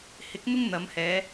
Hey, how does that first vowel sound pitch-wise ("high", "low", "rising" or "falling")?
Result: rising